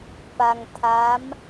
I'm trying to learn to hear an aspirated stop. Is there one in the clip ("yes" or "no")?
yes